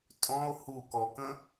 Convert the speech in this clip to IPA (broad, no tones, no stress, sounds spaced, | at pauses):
tʼ ɔ̃ o̯ h u k ɔ k ə̃